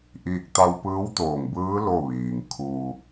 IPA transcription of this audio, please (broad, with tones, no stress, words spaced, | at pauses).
ʔiː˥˨k̚ t̪a˧wpɯː˧˥wt̪oː˧˩ŋbɯː˧˥ lo˥˨ʋiː˩ŋ kʰu˧